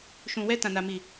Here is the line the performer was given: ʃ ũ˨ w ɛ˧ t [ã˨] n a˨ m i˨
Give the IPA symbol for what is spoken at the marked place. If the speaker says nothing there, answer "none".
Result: ã˨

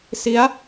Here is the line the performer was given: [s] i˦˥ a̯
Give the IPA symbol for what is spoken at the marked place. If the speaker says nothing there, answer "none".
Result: s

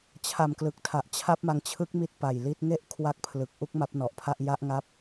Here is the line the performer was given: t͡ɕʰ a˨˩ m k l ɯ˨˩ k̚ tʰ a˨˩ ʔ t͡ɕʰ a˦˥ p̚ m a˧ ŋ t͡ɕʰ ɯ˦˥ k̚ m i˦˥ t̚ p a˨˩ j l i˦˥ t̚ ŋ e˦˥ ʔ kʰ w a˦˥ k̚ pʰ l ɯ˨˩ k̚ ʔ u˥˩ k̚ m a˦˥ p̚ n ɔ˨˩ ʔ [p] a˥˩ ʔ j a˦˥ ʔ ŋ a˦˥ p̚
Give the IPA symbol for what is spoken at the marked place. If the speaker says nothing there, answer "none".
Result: pʰ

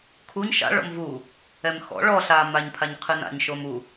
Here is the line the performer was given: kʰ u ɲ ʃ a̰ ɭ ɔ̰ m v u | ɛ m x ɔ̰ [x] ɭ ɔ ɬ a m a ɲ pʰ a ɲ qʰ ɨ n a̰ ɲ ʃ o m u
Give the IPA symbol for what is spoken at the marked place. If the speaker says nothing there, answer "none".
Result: none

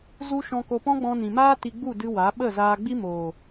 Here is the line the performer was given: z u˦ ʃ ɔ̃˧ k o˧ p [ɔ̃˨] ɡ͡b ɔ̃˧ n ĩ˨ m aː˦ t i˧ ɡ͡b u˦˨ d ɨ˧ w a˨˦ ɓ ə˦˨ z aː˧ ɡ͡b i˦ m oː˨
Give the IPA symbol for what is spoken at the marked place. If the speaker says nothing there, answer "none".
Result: ɔ̃˦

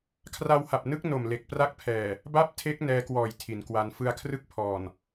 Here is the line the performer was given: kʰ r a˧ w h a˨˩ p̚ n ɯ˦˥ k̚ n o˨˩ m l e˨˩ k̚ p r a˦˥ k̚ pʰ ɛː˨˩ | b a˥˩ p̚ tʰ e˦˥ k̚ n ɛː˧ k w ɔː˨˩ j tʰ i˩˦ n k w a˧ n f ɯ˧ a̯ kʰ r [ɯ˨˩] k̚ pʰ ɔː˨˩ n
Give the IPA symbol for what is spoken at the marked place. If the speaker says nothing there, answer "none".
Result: ɯ˥˩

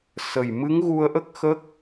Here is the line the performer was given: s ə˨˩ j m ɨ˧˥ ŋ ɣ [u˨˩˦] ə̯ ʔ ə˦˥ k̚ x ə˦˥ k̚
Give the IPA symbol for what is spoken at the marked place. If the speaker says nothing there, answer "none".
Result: u˧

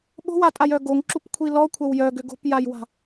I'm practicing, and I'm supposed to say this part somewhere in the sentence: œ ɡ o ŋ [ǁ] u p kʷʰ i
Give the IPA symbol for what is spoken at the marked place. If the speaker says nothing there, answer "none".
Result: ǁ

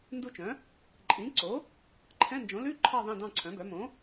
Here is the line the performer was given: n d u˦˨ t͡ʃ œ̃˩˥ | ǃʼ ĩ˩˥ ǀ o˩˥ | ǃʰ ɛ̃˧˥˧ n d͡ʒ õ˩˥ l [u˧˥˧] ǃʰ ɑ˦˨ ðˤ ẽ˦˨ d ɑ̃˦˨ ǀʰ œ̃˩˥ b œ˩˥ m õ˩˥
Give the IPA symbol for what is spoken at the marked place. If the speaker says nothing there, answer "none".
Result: ʉ˧˥˧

